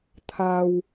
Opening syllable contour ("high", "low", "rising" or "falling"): low